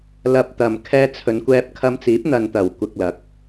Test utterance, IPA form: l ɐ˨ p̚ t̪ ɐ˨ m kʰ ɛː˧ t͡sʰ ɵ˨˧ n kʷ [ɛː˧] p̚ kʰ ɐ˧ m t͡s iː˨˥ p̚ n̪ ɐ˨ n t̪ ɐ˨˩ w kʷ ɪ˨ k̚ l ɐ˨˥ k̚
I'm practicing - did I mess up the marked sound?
no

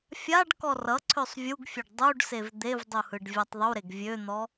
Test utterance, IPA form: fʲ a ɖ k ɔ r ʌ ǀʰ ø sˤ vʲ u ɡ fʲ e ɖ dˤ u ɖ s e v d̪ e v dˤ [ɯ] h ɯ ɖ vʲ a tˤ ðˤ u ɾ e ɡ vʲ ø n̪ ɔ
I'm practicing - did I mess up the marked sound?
yes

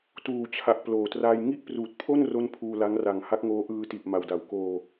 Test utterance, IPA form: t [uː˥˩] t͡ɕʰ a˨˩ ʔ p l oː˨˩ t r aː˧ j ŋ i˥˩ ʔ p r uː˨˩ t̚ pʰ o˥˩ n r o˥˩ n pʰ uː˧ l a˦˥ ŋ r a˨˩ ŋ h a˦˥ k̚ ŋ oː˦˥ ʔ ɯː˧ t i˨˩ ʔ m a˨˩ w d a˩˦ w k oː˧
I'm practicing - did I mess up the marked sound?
yes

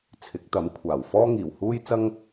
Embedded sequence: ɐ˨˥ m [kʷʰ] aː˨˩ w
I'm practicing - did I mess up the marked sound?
no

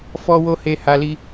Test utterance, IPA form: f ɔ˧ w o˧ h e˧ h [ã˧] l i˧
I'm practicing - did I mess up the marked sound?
yes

